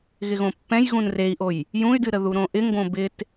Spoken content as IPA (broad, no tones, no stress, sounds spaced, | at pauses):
ɣ ɪ ɣ õ pː ɛ̃ j ɣ ũ n r e i̯ ʔ o j | j ũ y̯ d ɨ ɾ ə ð u ɾ õ ʔ ɪ ŋ ɡ õ b ɪ t